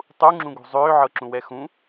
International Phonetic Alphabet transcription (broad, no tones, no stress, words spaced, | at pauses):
tˤuŋ͡ǁũɡṳ zˤʏːʕɤǁũwɛ xũ